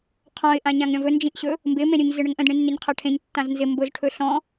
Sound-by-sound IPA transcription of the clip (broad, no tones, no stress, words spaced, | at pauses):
qʰɔ̃ɪ̯ ʔãɲãŋɾʲɔ̃vɵ nd͡ʒĩʔɕɵ | mbɪ mẽɾʲɵɲ zɪɳəŋʔə̃d ɳĩnːeɲqʰaʈʰẽɲ tːãznzɪ mbʊz ʈʰɵɬɔ̃